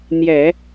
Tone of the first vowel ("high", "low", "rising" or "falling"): low